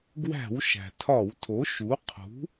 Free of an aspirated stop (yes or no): no